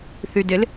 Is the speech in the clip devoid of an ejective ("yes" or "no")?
yes